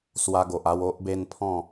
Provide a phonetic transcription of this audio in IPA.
s w a˧ ɡ o˨ ʔ a˧ w o˦ ʔ b e˦ n pʰ ɔ̃˥˧

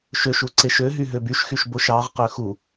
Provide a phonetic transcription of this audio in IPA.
ʃ ø ʃ u ǀ e ʃ ø ɦ y ɦ ø b y ʃ x y ʃ b o ʃ ɑ ʁ q ø x u

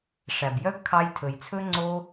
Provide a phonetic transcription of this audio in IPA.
ʂ æ˨ b j œ˦ ɡ kʰ ɑ˧ j tʰ ɵ˨ j t͡sʰ ɵ˦ ŋ͡ǀ o˦

